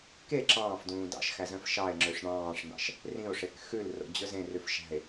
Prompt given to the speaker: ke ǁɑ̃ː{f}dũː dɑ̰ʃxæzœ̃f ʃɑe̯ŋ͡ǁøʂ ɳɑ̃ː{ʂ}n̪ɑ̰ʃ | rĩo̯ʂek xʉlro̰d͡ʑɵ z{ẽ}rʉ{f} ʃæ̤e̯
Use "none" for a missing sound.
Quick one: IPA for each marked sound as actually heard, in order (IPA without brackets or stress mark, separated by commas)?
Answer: f, ʂ, ẽ, f